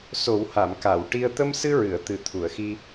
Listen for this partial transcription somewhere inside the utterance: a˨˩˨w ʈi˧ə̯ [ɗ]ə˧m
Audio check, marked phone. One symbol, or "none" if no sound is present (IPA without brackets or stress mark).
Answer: t̪